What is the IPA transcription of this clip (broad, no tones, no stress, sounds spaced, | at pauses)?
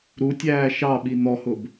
ɾ u tʲ æː ʃ ɑ ɓ i n̪ ɔ h ʊ b